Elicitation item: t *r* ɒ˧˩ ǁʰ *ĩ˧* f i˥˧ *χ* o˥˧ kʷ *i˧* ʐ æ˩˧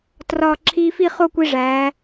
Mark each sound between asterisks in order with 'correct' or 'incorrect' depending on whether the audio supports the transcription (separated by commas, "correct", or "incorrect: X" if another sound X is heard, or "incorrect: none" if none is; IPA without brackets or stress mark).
correct, incorrect: i˧, correct, correct